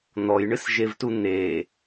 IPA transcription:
n̪ɔjɳɨsʒevtu n̪e

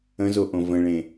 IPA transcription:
ə̃zoʔõ və̃ɭẽ

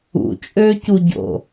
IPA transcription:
ṵ t͡ʃʼøcuɟo̰

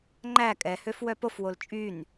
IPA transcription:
ŋ͡ǃæ kʼɛhøf wœpofwol t͡ʃʼyn

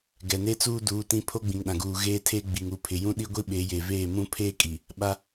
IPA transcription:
ɡɛ˨ne˦ t͡suː˦duː˨˦ tĩ˦ pʰo˦ɡ͡bĩ˨ŋɗã˨ɡuː˨ ɣeː˦tʰeː˦ ɡ͡bi˨ŋu˨pʰɪ˨ jũ˦ɗi˦ɡʷi˦ ɓe˨˦je˨ veː˦˨mũ˦ pʰeː˦kʼi˨ | ɓa˦

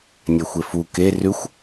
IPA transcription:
nʲɛxʷefu ke rʉxʷ

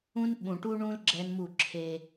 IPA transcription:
ũ˦n ɓũ˨ʈu˦ɳũ˦l ɡ͡ǁɛ˦nmu˦˨ǁʰe˦

